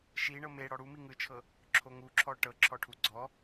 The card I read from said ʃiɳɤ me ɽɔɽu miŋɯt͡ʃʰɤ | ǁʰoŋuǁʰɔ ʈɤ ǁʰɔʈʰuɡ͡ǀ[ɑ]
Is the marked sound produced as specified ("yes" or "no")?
no